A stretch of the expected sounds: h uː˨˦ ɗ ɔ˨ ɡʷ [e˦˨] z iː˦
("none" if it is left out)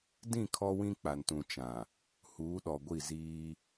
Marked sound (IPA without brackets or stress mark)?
i˦˨